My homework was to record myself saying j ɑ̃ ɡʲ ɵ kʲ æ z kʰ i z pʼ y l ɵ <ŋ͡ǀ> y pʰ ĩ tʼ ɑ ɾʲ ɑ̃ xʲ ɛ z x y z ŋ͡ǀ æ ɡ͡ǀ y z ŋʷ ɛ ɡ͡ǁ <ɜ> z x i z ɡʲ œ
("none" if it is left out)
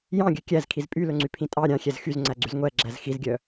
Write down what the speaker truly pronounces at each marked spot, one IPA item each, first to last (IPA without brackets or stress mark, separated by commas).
ŋ͡ǀ, æ